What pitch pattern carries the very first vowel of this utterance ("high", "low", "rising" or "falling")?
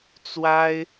high